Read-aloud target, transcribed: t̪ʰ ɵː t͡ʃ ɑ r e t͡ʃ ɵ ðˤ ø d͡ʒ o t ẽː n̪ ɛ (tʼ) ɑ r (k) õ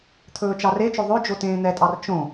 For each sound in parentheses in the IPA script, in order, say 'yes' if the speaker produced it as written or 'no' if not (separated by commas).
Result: yes, no